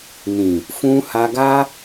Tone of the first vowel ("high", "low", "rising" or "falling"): low